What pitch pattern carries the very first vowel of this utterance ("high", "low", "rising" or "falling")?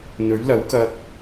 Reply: rising